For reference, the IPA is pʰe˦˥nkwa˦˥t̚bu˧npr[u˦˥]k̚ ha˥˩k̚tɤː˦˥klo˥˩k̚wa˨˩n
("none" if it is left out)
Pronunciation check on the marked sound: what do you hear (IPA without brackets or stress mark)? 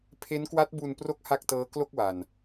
o˦˥